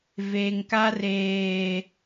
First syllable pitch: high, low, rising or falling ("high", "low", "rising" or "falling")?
low